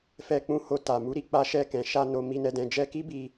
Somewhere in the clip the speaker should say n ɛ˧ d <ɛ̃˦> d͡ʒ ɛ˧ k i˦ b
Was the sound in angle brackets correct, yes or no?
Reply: no